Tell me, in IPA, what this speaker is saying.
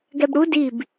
ɡ ɛ b ɽ u d i b

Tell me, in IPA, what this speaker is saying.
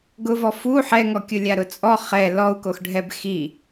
ɡ ʊ v ɔ f u ħ ɛ ŋ ɔ kʲ ʊ lʲ a ɾ ʊ t͡sʼ ɔ χ ɛ l ɔ u̯ k o x ɖʱ ɛ b x i

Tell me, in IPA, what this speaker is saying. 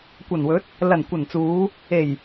kʷ ɐ˨˩ n w ɵ˨˥ t̚ | l ɐ˨˩ n kʷ ɐ˨˩ n t͡s uː˨˧ | e˨˩ j

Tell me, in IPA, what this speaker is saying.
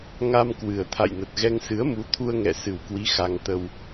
ŋ a˧ m k w ɨ˨˩ ə̯ t̪ʰ a̰˧˨ j n ə˨˩ t̚ ɣ ɛ˧ ŋ s ɨ˨˦ ə̯ m u˨˦ t̪ʰ u˧ ə̯ ŋ ɛ̰˧˨ s ɨ˨˩ w k w i˨˦ x a˧ ŋ t̪ ə˧ w

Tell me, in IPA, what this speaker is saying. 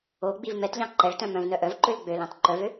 o ɡ͡b i v m ɛ t ʎ ɑ̃ ǃ ɛ ɭ t œ̃ m œ̃ v n œ ʔ œ v ǃ ø l ɡ͡b ø l ɑ̃ t ǃ œ v ø

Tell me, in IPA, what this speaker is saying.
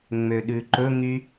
ŋ͡m ø ɗ ʉ ǃ ɵ ŋ y

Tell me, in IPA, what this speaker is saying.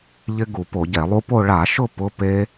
ʎ ɪ˧ ɡ u˧˩˧ p o˧˩˧ ɟ ɛ˧˩˧ lˠ u˦˥ p o˥˧ ɭ a˧˩˧ ʃ ʊ˥˧ p ʊ˧˥˧ p e˦˥

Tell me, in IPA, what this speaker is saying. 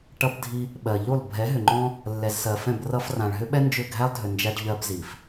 ʈ ʌ˧ b dʱ i˧ | ɓ ɜ˨ ʎ u˦˨ lˠ bʱ ɛ˨˦ ɦ ʏ˨ ŋ͡ǃ ɔ̃˦ | lː ɛ˨ z s ɜ˨ f ɛ̃˦˨ b r ʌ˧ f r ã˨ ɭ ɦ ʏ˦ ɓ ɛ˦ n d͡ʒ ʏ˦˨ ɡʱ æ˦ lˠ dʱ ʏ˨ n d͡ʒ æ˧ ɖ ʎ ɜ˧ b z i˨ f

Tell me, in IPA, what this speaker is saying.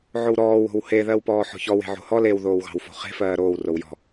ʕ o w ɾ ɔː w o̤ w h e ð ɜ w p ɔː ħ ɔ̤ ç ɔ w e̤ ʕ o̤ h ɔ l e w ð oː w ɣ ɑ̤ w f o̤ χ e̤ f ɜː ɾ oː w r o w j ɔ̤

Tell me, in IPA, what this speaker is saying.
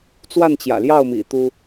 t͡s w a˥˨ n t͡ɕ j ä̰˨˩ l j ɑ˥˨ ʊ̯ m ḭ˨˩ t̪ u˦

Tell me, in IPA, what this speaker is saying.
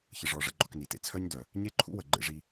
ç ə˨ ʐ ɔ˨ ʐ ə̰˧ ɡ͡ǃ ɔ˧ k n i˨ t ḛ˧ t͡sʰ œ˦ ɲ d œ˨ | ɲ e˦ ǃʰ ṵ˦ w ə˨ ɡ͡ǃ ḛ˧ ʐ i˧

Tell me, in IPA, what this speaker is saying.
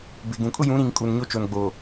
b ɪ˨ ɡ ũ˨ kʼ ʊ˦ j ũ˨˦ ɾ ĩ˨ ŋ kʼ u˨ n ɲ o˦ t͡ʃ o˨ n ɡ͡b oː˨

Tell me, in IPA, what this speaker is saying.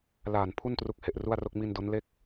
l aː˨˩ n pʰ u˥˩ n t r u˦˥ k̚ h e˨˩ ʔ r u˥˩ a̯ r o˥˩ k̚ m i˧ n d o˦˥ n l e˥˩ k̚

